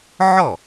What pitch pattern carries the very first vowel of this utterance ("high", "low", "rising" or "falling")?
falling